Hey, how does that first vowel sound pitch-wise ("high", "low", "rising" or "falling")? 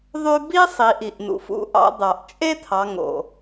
high